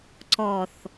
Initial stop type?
click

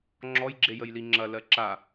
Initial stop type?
click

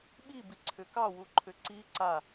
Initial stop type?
implosive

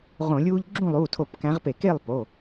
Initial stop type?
click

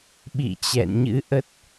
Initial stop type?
implosive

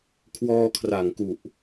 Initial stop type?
aspirated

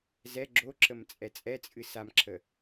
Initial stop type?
click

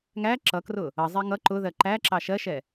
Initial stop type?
click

